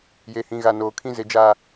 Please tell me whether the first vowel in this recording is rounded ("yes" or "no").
no